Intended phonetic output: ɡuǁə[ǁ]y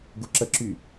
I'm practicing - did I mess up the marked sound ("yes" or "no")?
no